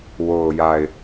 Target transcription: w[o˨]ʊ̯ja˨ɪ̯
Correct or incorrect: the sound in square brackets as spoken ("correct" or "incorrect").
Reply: correct